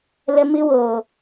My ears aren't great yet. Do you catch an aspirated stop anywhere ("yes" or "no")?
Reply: no